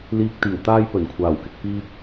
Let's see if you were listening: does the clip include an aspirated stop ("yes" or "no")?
yes